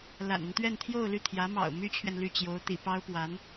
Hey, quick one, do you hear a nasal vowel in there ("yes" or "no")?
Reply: no